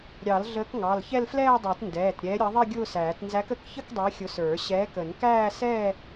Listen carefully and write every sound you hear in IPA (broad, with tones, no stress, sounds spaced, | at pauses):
ɾʲ ɑ˨˩˦ l ɮ əː˨˥ k ŋ ɑ˩˧˩ l ç ɛ˥˧ l f l ɛː˥˧ dˤ ɛ˨˩˦ t n d ɛː˩˧˩ t ɾʲ ɛː˨˥ ɾʲ ʌ˨˥ ðˤ i˥˧ ɡʲ ʊː˥˧ s æː˨˩˦ t n z æ˨˥ k ə˨˥ k ç ə˥˧ k dˤ i˨˥ xʲ ʊ˨˥ s ə˞˨˩˦ ɕ ɛː˨˥ k ə˨˩˦ n k æː˥˧ s ɛː˥˧